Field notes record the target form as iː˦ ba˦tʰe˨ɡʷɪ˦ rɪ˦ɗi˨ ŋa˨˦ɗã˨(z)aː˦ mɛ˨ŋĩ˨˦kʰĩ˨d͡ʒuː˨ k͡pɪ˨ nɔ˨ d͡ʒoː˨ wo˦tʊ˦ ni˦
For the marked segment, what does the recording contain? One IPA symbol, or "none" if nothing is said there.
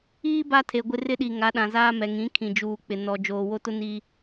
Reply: z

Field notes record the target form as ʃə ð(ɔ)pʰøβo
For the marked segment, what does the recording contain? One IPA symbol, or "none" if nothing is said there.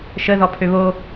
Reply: ɔ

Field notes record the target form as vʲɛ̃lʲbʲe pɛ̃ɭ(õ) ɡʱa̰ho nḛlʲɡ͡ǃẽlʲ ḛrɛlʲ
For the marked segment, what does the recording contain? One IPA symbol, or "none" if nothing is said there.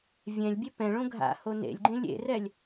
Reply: õ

